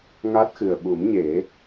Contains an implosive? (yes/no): yes